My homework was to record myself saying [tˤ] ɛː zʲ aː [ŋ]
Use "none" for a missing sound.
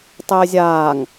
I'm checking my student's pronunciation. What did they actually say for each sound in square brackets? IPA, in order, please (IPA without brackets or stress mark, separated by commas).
tˤ, ŋ